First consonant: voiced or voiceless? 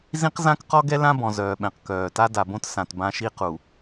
voiced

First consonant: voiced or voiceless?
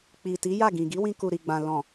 voiceless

